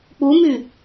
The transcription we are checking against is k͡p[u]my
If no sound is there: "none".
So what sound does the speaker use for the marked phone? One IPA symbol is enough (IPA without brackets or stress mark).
u